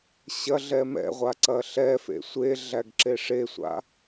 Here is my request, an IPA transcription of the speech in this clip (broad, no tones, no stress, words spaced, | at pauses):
ɕɐɮɛ mɛ̰ʁʷaǀɐ ɬɛfḛ sʷeɮæɡǁe ʂesʷa̰